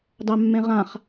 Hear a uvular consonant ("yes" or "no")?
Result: yes